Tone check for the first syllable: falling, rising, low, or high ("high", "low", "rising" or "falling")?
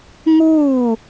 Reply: falling